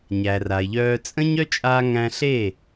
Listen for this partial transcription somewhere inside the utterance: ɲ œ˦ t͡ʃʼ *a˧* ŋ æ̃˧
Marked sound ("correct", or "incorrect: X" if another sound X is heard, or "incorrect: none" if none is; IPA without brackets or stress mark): correct